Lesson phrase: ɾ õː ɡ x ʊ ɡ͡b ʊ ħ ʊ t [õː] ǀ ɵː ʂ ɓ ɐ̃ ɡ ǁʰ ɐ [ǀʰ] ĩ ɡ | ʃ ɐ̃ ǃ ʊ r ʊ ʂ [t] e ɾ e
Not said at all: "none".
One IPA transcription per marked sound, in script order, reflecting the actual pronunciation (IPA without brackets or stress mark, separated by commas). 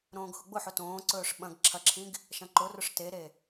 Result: õː, ǁʰ, t